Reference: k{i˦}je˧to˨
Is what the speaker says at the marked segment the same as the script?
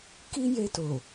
yes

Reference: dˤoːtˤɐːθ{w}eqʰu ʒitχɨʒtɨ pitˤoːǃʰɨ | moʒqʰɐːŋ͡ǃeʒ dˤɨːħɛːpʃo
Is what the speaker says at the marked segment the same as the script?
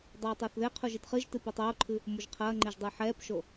no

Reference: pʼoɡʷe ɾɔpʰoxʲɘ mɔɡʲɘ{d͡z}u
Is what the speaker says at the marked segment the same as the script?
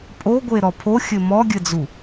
yes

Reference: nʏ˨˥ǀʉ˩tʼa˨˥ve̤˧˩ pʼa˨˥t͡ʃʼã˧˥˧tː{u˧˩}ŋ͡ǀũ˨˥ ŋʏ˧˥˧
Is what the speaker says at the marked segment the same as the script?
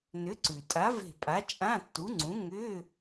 no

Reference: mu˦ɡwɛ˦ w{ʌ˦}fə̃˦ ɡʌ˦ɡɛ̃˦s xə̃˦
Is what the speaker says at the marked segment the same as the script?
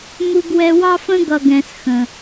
no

